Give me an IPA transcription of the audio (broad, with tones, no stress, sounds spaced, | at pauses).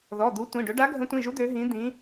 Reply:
ð ɔ˩˧˩ d̪ u˨˦ tʷ ĩ˩˧˩ ɖ ɵ˨˦ ɖ a˨˦ ɡʱ ə̃˨˦ tʷ ĩ˩˧˩ ʒ u˨˦ d̪ ø˨˦ ɦ ĩ˨˦ d̪ ĩ˨˦